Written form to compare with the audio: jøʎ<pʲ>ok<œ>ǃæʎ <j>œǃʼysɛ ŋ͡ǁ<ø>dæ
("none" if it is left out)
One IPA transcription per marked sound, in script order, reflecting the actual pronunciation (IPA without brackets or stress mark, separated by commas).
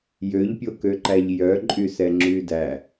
pʲ, ø, j, y